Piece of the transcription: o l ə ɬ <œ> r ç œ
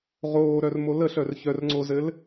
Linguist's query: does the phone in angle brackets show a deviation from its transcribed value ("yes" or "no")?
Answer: no